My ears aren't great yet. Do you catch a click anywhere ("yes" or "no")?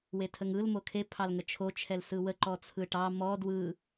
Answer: yes